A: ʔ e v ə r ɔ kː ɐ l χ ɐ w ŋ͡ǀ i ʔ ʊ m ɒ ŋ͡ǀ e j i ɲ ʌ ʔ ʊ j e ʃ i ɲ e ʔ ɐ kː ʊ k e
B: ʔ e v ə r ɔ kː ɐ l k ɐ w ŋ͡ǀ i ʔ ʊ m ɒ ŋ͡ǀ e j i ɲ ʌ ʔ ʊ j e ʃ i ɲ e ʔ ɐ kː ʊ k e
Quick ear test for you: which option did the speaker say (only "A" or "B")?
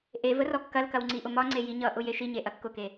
B